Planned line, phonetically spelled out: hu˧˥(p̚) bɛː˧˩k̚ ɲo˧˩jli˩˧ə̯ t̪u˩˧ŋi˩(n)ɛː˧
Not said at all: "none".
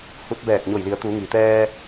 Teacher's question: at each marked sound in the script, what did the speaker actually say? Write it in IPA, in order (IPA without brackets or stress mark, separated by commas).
t̚, t̪